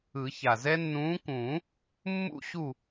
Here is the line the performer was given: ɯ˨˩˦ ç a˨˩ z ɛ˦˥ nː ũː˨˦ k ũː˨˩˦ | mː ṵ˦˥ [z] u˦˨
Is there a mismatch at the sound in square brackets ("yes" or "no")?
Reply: yes